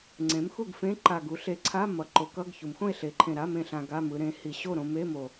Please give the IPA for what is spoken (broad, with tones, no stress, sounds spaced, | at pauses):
ŋ͡ǀ ẽ˩˥ m x u˥˨ ɡ f ẽ˧˥˧ ǃ a˨˩ ɡ u˩˧ ɬ e˨˩ ǀʰ a˧˥˧ m ʌ˩˧ ǃ o˩˧ k ʌ˧˥˧ ɡ ç u˩˧ m x õ˥˨ e̯ ɬ e˩˥ ǃʰ ẽ˨˩ ɾ a˧˥˧ m ẽ˥˨ ɬ ã˧ ɡ a˧˥˧ m ɯ˩˧ ɾ ẽ˩˥ h i˨˩ ɕ o˥˨ ɾ õ˧ m e˧˥˧ m o˨˩